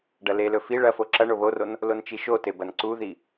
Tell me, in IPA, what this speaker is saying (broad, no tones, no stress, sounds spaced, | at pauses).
ɖ ɐ l e l ɵ f i ɭ ɐ f o ǁ ɐ ɳ o β o r o n | l o n t͡ʃ i ʃ o t e b ɐ n ǀ u ð i